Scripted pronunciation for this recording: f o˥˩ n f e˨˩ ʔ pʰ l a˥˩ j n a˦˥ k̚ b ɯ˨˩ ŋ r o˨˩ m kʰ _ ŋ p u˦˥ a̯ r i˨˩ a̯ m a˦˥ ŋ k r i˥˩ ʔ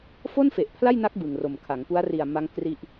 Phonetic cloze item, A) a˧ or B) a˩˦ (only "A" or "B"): B